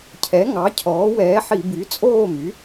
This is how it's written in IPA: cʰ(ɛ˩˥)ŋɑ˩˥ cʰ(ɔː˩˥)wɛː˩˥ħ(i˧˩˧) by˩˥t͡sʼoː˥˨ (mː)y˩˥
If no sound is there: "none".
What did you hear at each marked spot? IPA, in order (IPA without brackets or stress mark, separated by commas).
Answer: ɛ˩˥, ɔː˩˥, i˧˩˧, m